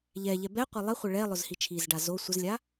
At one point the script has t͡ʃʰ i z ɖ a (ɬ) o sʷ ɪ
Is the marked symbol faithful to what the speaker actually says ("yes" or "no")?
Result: no